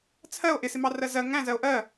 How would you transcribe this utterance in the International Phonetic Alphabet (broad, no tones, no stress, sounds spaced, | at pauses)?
t͡sʰ ɜ o̯ ʔ ɪ s ɪ m ɑ r ɜ z ɜ ŋ æ̃ z ɜ o̯ ʔ ɜ